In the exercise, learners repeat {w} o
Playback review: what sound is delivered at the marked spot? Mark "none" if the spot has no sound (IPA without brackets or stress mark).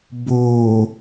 b